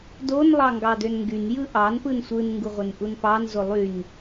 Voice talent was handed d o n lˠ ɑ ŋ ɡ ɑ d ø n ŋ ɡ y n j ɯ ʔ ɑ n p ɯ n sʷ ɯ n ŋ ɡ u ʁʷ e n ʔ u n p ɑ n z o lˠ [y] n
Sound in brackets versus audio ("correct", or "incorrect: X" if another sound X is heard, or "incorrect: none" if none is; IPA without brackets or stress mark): correct